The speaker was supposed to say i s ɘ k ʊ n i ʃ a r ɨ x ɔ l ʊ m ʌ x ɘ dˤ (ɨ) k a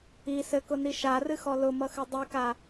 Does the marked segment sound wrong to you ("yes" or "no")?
yes